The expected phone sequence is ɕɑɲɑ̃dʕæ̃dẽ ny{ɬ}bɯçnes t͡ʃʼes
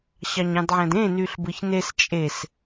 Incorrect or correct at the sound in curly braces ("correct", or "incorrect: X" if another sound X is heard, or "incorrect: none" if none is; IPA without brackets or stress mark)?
correct